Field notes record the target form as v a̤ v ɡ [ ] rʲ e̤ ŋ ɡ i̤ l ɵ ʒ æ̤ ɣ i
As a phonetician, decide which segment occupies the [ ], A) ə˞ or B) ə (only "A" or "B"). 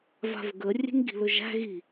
B